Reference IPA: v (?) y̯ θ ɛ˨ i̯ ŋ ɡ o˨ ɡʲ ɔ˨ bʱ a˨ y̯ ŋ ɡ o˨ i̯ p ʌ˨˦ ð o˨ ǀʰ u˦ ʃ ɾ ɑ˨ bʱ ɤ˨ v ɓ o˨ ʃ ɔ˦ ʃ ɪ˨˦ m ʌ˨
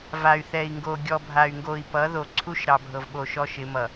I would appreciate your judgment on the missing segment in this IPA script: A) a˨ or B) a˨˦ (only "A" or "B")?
A